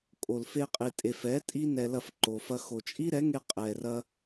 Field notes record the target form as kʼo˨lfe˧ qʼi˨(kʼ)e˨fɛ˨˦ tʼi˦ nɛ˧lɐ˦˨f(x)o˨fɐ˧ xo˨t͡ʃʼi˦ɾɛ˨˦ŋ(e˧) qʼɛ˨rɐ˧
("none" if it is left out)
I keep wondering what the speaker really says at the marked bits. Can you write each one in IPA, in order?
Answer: tʼ, ǃ, e˧

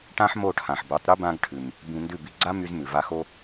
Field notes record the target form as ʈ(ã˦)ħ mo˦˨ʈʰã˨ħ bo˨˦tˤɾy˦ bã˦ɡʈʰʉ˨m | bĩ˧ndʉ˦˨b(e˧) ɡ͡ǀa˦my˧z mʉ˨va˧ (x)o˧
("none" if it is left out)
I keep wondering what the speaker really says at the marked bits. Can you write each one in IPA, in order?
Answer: ã˦, i˧, x

